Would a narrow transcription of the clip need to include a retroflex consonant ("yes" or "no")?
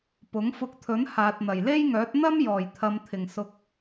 no